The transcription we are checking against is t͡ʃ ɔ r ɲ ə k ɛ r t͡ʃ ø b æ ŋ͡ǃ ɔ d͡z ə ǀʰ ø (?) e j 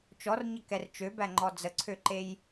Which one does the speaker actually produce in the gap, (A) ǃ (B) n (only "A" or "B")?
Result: A